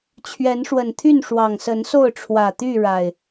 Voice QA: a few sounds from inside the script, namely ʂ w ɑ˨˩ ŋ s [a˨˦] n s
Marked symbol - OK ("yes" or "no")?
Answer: no